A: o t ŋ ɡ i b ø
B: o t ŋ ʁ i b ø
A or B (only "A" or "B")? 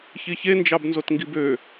A